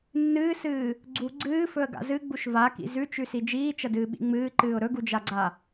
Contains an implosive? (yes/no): yes